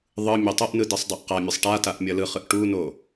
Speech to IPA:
ðˤ ɯ mʲ e tˤ ʌ ʔ n ɯ d i sˤ dˤ ɛ ʔ q a mʲ ʌ sˤ ʈ a t a ʔ mʲ ʌ l ɯ χ ɯ ʔ ʈ u n o

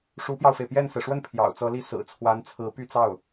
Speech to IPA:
ʂ u˧˥ p j ɑ˧ ʊ̯ f e˩ ɪ̯ p j ɛ˥˩ n s ɹ̩˩ ʂ w ə˥˩ n pʰ j ɑ̰˨˩ ʊ̯ t͡s ɤ˧˥ l i˥˩ s ɹ̩˨˩ t͡sʰ w a˧˥ n t͡sʰ ɹ̩˧˥ p y˥˧ t͡s ɑ˥˩ ʊ̯

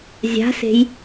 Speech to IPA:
zʲ a̤ s e̤ j

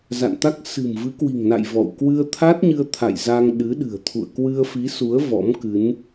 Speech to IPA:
z a̰˧˨ n t̪ a˦˥ k̚ s ɨ̤˨˩ m v ɨ˨˦ k w i̤˨˩ ŋ n a̰˧˨ j v ɔ̰˧˨ w k w ɨ˧ ə̯ t̪ʰ a˦˥ t̚ ɲ ɨ˧ ə̯ t̪ʰ a̰˧˨ j z a˧ ŋ ɗ ɨ˨˦ ɗ ɨ̤˨˩ ə̯ t̪ʰ ṵ˧˨ ə̯ k w ɨ˧ ə̯ f i˨˦ s u˨˦ ə̯ v ɔ̰˧˥ m k ɨ˨˦ n

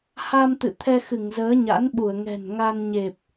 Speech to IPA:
h a˧ m t̪ ɨ̰˧˨ t̪ʰ ɛ˧ x ɨ˧˩ ŋ z əː˨˦ ɲ a̰˧˥ n ɓ u˧˩ ə̯ ŋ ɛ̤˨˩ n ŋ a˧ n ɲ e˨˩ p̚

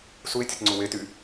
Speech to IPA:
s u e̯ tʲ ʊ t ŋ͡ǀ u w e t y

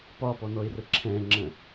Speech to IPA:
p ɒ p ɔ n ɔ ɪ̯ r ə ǁʰ ɛ̃ ŋ͡ǁ ə̃

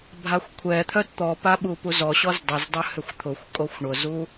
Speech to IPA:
bʱ a xʷ kʷʰ ɛ t̪ʰ œ t t̪ ɔ p a ɓ u p u z ɔ ɕ ɔ z dˤ ʏ z dˤ ʏ h ʏ xʷ t̪ʰ ʊ xʷ kʼ o xʷ ɳ ʊ z u

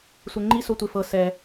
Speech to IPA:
sʷ e ŋ͡ǃ i s o tʷ e f ɤ s ɛ

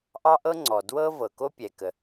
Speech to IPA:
ʔ ɑ˥ ʔ ɤ˥ ŋ͡ǀ ɔ˩ d w ɤ˥ v ɤ˩ k o˥ pʲ ɛ˩ k ə˩

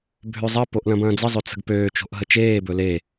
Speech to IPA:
bʱ ø zˤ ɐ p o ʔ l ɐ̃ b ɐ̃ː d͡z ɘ zˤ ɵ t͡s ə̤ ɡ p øː t͡ʃ o̤ ʔ ɦ ə t͡ʃ eː b ɵ l e

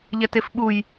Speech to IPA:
ʎ ɛ t e f ɓ u j

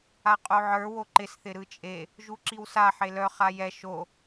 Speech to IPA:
a qʼ o ʕ ə˞ w o ǃ ɪ s θ ɪ ɾ ɯ t͡ʃʼ e | ʒ u ǁ i w s a ħ e l œ χ a j ɛ ʃ o

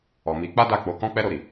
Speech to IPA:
ɔ˨ m i˨˦ k͡p a˦ d a˦˨ k͡p o˨˦ k ɔ̃˦ k͡p ɛ˦ ɾ o˧ ɾ i˨

